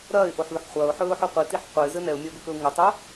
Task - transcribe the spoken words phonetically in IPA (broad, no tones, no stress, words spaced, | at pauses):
ɾɐːɪ̯ʔoħðʊħ χʷɐːʊ̯ħɵːʊ̯ħo qʷitiħ qʷəɪ̯zɘ nɛʊ̯mʲɐʊ̯bɘkɵʊ̯ ŋətˤo